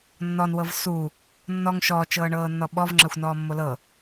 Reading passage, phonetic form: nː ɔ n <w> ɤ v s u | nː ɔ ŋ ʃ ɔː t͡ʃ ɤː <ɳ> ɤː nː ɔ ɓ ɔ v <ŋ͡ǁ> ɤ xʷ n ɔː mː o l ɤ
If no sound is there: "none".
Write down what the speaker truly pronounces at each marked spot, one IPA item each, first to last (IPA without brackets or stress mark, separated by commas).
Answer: w, ɳ, ŋ͡ǁ